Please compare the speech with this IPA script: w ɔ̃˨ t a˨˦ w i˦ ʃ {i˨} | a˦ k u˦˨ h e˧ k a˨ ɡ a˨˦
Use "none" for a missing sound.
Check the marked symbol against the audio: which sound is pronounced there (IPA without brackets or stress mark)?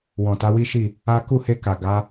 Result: i˦˨